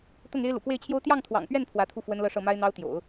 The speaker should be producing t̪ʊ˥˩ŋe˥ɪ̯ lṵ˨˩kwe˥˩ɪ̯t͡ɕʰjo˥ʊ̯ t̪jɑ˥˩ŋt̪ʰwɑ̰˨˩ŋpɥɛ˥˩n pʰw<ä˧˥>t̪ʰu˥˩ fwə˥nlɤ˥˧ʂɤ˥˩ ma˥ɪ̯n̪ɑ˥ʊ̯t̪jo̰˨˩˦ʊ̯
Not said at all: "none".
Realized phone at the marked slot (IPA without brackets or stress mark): ä˧˥